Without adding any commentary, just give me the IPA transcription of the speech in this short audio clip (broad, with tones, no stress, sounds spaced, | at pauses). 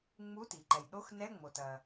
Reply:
ŋ͡m u˧˥˧ t i˩ ǃ ɛ˩ j ɗ o˧˥˧ x n ɛ˧˥˧ ŋ͡m o˩ t ɐ˩